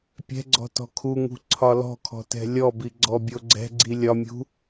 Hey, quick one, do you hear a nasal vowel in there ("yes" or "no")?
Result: no